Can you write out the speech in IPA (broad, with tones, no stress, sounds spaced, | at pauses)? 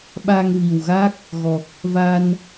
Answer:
ɓ a˧ ŋ v i˨˩ w ɣ a˦˥ k̚ | ɣ ɔ˨˩ k̚ | v a˧ n